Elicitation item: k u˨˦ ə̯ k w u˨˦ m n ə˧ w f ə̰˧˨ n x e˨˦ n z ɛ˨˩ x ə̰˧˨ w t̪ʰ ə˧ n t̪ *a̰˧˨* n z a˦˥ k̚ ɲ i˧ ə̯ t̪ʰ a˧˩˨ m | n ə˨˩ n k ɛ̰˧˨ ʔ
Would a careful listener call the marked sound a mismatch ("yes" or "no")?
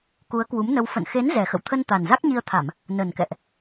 yes